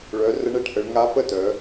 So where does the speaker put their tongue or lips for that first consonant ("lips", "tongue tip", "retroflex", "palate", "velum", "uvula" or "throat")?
retroflex